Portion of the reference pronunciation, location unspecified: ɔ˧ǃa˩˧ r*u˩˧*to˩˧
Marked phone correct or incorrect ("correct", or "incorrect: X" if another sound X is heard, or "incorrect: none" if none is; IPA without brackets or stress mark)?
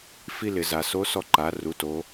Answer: correct